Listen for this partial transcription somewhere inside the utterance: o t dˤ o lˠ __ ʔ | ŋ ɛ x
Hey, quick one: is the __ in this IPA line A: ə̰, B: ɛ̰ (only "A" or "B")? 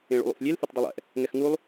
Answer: B